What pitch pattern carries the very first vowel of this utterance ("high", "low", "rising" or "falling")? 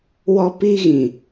high